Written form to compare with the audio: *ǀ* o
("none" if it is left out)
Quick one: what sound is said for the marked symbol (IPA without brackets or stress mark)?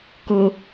k